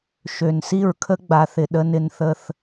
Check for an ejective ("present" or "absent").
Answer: absent